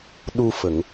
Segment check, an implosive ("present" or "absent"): present